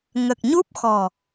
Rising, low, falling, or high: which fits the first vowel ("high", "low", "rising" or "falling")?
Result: low